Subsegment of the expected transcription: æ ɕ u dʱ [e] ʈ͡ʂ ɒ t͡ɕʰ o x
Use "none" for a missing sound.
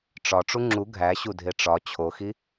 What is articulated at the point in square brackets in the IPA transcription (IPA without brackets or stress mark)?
e